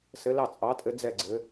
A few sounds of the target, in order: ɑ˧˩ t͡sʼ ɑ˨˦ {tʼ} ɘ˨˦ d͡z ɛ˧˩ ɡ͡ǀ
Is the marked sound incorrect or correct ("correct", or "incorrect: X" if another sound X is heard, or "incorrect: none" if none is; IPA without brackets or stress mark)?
correct